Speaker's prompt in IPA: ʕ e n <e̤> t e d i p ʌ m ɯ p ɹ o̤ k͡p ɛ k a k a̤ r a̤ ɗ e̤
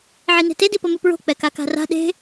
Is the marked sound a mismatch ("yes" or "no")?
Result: no